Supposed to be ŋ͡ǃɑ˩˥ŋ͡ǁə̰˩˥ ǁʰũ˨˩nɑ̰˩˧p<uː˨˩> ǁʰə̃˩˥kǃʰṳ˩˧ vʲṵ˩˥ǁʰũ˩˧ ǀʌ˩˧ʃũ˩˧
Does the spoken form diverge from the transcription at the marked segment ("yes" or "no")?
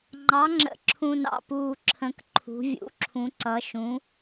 no